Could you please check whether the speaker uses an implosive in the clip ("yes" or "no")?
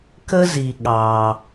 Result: yes